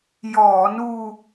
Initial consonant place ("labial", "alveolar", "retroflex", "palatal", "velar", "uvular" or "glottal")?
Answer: palatal